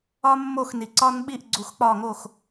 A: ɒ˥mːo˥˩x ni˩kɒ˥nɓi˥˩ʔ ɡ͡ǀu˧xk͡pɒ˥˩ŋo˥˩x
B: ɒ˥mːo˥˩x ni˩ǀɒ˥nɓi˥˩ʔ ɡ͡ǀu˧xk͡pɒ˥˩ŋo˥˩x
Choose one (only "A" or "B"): B